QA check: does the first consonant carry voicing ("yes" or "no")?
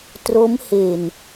no